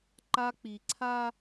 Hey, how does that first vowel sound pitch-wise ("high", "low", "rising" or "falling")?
high